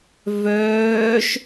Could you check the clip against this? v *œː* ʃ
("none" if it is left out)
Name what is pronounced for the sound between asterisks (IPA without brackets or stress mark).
œː